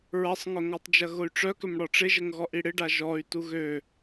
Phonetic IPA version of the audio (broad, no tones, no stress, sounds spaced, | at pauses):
ɹ ɐ sˤ ŋ ʊ ŋ ɔ tˤ d͡ʒ ɐ ɣ ʊ y̯ ʈ͡ʂ œ k ʏ m ɽ ɔ ʈ͡ʂ ɪ ʒ ə ŋ ɣ ɔ ʔ i ɽ ɪ ɖ a ʒ ɔ y̯ t u ɣ ø